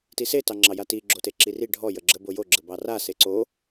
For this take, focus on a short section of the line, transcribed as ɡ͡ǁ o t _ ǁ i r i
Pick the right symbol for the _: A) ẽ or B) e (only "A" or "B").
B